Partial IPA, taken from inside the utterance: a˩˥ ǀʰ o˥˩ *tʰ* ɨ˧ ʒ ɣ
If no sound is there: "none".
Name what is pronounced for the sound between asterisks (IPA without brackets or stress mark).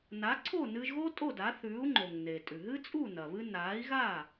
n